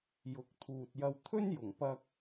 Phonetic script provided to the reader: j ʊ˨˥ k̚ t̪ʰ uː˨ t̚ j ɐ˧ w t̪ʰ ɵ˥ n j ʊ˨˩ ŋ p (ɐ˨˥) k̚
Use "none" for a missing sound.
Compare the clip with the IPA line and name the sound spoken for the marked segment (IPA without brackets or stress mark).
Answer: ɐ˧